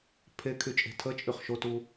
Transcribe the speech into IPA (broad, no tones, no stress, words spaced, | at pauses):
pʰe kʰyt͡ʃʼe̤tʰət͡ʃʼyχ ʃotu